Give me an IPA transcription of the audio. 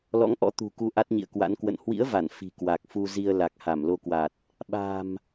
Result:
l ɔ̰˧˥ ŋ ʔ ɔ̰˧˥ t̪ ṳ˨˩ k u˨˦ ʔ a˦˥ t̚ ɲ ḭ˧˨ ə̯ k w a̰˧˥ n k w ə̰˧˨ n h w ḭ˧˥ ə̯ v a˧˩ n f i̤˨˩ k w a˨˩ k̚ f u˧ z i˧ ə̯ l a˨˩ k̚ h a˧˩ m l o˧ k w a˨˩ t̚ | ɓ a̤˨˩ m

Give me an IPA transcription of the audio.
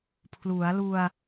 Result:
pʰ l u˩˦ a̯ l u˧ a̯

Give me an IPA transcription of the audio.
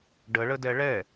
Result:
ɖ ə ɭ ə d ɛ ɭ ɛ

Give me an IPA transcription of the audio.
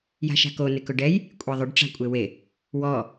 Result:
j a̤ ʃ a̤ k o n ɪ k ʊ ɖ ɛ j | kʷʼ ɛ ðˤ ʊ ɖ ʈ͡ʂ a̤ kʷʼ e w e | w ɔ

